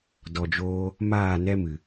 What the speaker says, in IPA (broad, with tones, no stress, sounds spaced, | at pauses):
d ɔ˨ d͡ʒ oː˧ | m aː˦˨ n ɛ˦ m ɨ˨